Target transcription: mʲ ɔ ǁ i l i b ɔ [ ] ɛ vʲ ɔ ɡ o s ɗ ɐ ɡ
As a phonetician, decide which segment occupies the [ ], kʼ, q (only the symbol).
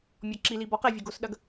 q